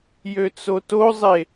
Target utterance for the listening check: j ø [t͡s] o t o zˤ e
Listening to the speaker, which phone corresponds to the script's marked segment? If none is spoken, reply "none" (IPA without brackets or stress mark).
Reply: t͡s